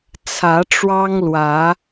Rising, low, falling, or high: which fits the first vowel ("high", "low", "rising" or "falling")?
rising